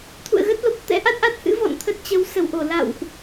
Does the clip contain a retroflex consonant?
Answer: no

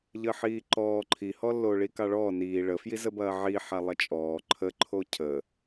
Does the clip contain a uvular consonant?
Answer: no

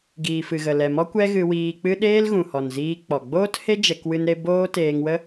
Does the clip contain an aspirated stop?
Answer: no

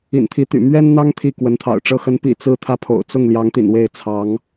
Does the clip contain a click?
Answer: no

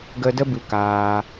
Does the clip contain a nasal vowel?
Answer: no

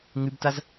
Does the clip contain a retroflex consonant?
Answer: no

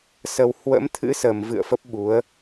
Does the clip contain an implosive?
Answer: yes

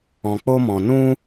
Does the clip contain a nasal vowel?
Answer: yes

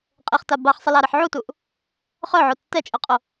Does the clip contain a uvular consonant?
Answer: yes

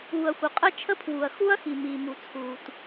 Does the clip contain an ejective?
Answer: yes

